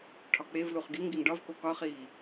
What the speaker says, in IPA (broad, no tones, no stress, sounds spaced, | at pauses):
ʈʰ ɒ k͡p e v l u χ ɡ i ŋ ɡ i ŋ ɖ ɒ v k o k ɒ χ iː